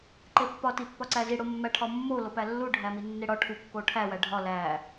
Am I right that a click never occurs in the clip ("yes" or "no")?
no